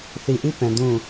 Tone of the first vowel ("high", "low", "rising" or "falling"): low